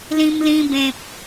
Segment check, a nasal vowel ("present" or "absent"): present